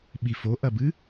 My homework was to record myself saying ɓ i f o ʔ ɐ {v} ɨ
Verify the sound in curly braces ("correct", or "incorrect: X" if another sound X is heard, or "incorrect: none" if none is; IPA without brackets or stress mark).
incorrect: b